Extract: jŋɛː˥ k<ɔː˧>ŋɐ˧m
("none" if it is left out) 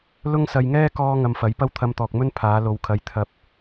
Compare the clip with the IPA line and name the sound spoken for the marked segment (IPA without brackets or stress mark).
ɔː˥